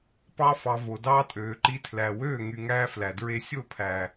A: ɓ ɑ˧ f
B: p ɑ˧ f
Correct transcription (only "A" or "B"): B